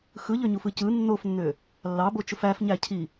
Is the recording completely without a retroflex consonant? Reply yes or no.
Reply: yes